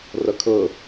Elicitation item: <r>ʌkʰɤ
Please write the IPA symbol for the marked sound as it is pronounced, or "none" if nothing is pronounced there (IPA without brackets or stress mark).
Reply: r